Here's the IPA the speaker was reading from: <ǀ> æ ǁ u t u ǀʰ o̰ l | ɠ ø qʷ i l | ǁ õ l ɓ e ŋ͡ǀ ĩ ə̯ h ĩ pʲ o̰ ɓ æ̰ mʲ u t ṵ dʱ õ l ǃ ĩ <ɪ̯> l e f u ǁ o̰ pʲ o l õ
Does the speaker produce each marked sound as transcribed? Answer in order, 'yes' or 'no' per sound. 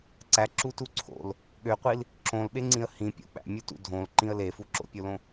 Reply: yes, no

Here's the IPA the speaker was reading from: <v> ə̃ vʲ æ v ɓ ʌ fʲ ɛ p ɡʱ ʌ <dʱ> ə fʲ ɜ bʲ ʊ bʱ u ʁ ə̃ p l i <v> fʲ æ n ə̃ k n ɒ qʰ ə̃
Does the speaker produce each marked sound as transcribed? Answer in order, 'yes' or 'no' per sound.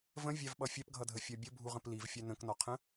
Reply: yes, yes, yes

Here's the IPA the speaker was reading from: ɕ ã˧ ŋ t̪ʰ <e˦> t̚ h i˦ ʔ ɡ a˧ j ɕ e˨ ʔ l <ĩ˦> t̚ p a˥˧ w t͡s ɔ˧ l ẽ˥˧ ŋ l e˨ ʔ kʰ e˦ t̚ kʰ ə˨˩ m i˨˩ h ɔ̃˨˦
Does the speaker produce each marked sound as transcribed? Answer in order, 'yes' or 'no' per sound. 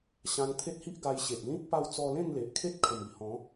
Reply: yes, yes

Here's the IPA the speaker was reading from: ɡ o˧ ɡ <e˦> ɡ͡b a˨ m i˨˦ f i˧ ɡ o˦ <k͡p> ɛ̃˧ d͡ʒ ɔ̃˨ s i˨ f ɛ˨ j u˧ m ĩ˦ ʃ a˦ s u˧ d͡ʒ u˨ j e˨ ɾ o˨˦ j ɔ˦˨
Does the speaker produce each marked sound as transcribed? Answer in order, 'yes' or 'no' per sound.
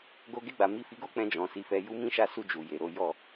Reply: no, yes

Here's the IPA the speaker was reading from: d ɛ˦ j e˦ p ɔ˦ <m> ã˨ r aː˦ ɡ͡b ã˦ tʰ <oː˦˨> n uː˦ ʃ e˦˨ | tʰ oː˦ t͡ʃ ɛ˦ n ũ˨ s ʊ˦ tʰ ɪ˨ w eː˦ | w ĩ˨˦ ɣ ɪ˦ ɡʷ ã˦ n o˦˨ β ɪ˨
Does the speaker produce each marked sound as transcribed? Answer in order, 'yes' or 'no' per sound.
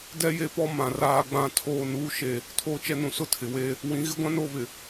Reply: yes, yes

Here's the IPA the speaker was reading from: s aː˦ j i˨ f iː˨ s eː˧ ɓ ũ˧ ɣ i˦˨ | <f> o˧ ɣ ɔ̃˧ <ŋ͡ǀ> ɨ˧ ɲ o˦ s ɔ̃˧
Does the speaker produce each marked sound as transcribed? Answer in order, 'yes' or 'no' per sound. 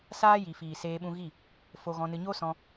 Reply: yes, no

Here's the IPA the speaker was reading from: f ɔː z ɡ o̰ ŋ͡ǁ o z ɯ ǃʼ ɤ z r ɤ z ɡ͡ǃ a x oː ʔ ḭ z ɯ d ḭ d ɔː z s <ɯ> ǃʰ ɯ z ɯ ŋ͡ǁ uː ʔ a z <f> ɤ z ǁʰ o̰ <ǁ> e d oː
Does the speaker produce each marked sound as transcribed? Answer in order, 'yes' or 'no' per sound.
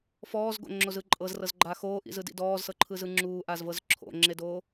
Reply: no, no, no

